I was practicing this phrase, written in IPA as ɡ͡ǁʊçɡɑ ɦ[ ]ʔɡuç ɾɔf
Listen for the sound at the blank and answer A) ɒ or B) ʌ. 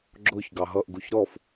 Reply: B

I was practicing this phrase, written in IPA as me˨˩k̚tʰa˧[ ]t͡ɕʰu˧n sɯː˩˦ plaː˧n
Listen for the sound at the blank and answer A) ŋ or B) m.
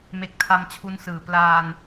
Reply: B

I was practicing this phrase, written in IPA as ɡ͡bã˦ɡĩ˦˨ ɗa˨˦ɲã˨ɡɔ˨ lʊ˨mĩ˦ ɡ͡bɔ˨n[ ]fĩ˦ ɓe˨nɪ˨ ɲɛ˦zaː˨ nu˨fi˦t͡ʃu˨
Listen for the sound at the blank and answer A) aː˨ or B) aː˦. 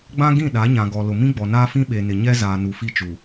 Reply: B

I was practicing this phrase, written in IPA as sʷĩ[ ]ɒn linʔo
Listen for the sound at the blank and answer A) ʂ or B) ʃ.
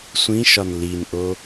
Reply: B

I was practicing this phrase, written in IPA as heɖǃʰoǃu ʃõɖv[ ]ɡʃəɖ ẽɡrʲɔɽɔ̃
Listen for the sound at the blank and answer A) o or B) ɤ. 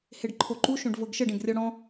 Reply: B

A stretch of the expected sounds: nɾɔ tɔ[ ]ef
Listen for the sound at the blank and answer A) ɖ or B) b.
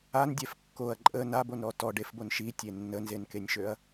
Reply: A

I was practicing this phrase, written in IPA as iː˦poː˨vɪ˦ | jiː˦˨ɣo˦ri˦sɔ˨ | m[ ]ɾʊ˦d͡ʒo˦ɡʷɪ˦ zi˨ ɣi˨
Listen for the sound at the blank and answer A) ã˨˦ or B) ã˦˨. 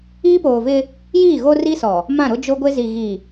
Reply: B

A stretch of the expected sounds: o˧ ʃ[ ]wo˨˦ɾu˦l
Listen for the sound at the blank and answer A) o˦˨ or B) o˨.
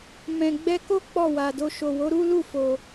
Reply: B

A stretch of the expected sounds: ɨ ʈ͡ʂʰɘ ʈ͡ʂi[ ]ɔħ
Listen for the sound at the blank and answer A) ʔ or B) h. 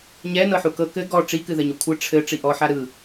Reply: A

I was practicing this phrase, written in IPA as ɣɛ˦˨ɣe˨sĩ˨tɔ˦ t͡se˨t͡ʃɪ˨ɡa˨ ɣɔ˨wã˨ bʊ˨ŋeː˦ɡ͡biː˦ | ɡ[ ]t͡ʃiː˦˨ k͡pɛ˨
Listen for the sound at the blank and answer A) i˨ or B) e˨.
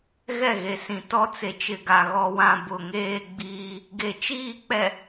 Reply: B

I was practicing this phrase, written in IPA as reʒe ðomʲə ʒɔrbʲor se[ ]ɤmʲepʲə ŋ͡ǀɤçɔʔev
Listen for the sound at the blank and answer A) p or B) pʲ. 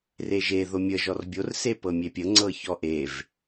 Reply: A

